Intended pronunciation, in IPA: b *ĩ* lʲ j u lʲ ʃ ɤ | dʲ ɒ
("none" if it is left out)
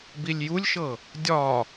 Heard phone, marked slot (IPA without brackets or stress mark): i